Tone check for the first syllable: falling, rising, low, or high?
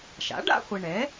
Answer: rising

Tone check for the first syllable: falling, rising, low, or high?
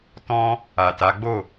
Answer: high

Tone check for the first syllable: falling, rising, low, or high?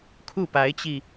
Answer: falling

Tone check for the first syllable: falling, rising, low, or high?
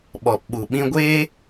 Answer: low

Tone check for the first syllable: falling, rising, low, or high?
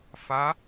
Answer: rising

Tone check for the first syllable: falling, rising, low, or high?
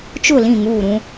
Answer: falling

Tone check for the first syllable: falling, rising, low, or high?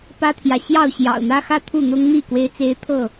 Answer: high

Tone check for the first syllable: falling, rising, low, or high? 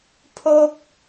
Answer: falling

